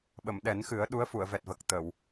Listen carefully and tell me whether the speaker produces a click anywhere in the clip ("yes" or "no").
no